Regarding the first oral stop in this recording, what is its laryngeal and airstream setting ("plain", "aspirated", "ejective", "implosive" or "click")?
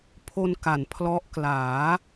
aspirated